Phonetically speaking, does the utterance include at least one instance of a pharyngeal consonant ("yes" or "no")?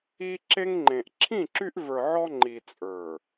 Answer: yes